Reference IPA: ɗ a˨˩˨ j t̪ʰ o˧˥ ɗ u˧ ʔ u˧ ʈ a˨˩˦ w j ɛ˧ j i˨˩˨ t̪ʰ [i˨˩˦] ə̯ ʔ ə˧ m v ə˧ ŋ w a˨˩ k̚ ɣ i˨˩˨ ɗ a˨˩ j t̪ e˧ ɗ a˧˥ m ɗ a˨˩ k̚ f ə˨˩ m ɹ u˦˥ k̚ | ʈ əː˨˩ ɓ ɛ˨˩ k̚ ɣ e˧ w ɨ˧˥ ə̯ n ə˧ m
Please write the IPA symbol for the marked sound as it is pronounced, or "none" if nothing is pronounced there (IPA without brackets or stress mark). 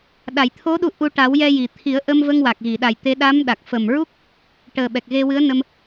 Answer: i˨˩˦